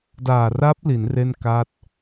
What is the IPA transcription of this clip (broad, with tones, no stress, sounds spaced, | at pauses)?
d aː˨˩ r a˦˥ p̚ l i˩˦ n r e˥˩ n k a˥˩ t̚